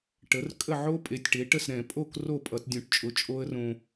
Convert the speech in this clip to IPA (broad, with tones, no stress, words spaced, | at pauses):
ʈə˩˥r kʼə˥˩ʕo˦˥ pʼe˩˥tʲʈe˩˥ʈə˥˩s ɾɛ̃˧˩˧pʼo˥˩k ro˥˩ pʼʌ˧˩˧tdʲõ˧˩˧ʈt͡ʃʼʊ˩˥ t͡ʃʼo˦˥ə̯rõ˧